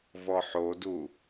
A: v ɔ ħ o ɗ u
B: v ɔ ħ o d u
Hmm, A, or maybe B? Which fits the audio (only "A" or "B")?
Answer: B